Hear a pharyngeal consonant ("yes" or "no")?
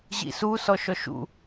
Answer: no